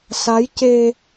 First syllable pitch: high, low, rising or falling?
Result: rising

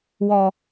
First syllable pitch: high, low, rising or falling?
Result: low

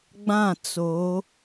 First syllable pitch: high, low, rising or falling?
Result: falling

